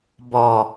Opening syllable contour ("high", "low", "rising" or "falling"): low